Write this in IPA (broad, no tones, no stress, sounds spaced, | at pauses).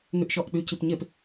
ŋ y ʔ ʃ ɔ ʔ k͡p y c i p ɲ e p